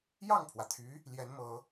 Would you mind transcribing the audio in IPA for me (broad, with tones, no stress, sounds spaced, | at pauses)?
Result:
j ɑ˥˩ ŋ pʰ w ä˩ t̪ʰ y˧˥ | l j ɛ˧˥ n m ɤ˧˥